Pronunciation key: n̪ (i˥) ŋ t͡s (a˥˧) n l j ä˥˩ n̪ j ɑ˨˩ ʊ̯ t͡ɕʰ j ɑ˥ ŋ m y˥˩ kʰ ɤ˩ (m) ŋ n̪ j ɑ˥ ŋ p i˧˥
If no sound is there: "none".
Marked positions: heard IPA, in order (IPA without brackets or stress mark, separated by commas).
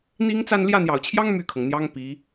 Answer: i˥, a˥˧, none